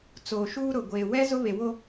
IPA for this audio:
t͡soː˨ʃuː˦ɾʊ˨ ɡʷeː˨wɛ˦ zʊ˦βe˨wo˦

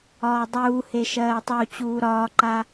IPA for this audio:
ɒːdˤuːhe ʃɜːtˤut͡ɕuː ɾɒːǃa

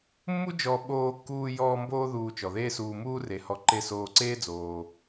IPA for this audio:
mːu˦d͡ʒɔ˨ ɓoː˨kːuː˨jɔː˨ mboː˦ðuː˨t͡ʃɔ˩ðeː˦ suː˨muː˦re˩hɔ˨ ǃe˦ soː˨ǀeː˦d͡zoː˩

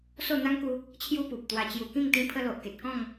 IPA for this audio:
so˥˧n̪a˦ŋku˧ | t͡ɕʰju˧ pu˨p̚t̪wa˧ t͡ɕju˨˩kĩ˥˧ŋ t̪ĩ˦pʰə˦lo˨ʔ ke˨t̚kɔ̃˥˧ŋ

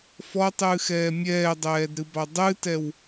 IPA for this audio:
fɔtˤɨːxɛː mʲɛːdˤɛːdɾɨbɑ dˤɨtɛw

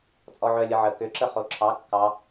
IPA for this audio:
t͡sʼɔʕœ lʲəʕə kʏǁə χoǁʰɑ kːɑ

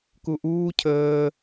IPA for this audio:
kuʔuː cʰəː

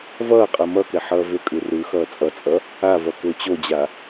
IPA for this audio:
vʌːqʼʌ mʌkɛ ħʌːvʏkʼɯ rɯ xʌːt͡sʼʌt͡sʼʌ | avʌ kʏːt͡ɕod͡ʑa

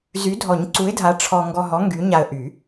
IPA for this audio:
zy˨˥dʱɔ˨˩˦ɲǀu˨˥ɪ̯dʱa˨˥ ʈ͡ʂʰɔ˧ ŋɡɔ˧ɦɔ˨˥ ŋɡy˨˥ɲa˧ə̯ ʔy˨˩˦

